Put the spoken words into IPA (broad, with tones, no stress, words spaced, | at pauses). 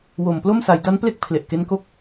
wo˨˩mplo˥˩m sa˩˦jda˦˥nple˥˩k̚ pʰle˨˩ʔke˦˥nko˥˩k̚